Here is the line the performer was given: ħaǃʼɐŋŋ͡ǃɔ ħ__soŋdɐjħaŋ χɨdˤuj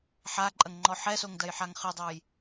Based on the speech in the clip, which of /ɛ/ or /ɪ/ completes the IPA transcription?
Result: ɛ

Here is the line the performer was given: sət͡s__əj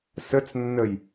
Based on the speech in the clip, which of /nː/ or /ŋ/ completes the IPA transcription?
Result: nː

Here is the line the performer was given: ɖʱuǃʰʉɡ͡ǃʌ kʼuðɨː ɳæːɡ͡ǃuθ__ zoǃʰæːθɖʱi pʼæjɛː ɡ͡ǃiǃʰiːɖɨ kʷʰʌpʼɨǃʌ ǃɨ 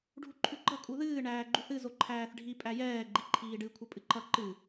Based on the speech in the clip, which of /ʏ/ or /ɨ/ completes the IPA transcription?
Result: ɨ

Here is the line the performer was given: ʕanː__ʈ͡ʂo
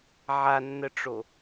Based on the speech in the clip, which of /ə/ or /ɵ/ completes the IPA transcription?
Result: ə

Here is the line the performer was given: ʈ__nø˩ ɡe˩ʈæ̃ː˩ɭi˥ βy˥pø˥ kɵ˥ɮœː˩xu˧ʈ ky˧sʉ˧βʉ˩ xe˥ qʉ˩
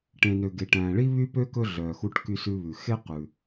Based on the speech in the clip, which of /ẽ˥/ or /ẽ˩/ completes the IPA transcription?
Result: ẽ˩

